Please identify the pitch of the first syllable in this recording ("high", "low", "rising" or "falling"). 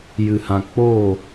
low